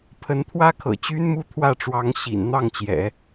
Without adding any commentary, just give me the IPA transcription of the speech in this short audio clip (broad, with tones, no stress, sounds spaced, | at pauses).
pʰ ə˧˥ n t̪ʰ w ä˥ kʰ ɤ̰˨˩ t͡ɕ y˥ n m u˥ t̪ʰ w ä˥˩ ʈ͡ʂ w ɑ˧˥ ŋ ɕ ḭ˨˩ n n̪ ɑ˥˩ ŋ t͡ɕ j ɛ̰˨˩˦